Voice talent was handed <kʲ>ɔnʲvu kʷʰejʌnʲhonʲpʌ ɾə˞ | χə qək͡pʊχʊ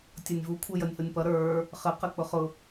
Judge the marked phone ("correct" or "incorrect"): incorrect